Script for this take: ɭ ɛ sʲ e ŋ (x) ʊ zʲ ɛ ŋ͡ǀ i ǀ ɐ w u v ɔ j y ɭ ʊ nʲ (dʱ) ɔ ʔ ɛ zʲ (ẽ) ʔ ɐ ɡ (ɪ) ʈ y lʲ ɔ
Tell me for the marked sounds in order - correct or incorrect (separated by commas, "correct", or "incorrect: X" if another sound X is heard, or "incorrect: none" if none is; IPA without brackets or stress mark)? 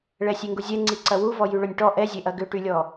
incorrect: ɡ, incorrect: ʈ, incorrect: e, incorrect: ʏ